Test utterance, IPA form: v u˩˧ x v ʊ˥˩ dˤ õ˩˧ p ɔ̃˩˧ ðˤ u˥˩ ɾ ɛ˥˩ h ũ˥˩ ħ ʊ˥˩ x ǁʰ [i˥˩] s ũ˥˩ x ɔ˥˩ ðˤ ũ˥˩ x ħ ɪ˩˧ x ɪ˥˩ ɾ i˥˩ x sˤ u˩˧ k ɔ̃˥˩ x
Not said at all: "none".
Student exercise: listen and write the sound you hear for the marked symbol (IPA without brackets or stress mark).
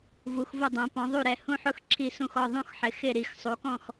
i˥˩